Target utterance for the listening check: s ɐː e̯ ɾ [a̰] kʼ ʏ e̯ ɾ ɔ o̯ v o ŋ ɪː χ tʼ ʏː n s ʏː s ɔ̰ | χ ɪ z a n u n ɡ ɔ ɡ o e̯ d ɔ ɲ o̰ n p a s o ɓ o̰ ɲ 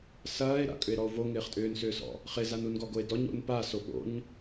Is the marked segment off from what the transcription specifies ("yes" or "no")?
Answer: no